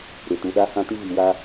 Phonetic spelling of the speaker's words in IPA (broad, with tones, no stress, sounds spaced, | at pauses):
ɾ ɪ˨ t u˨ ɗ a˦ h ã˦ t i˦ v i˨ w a˦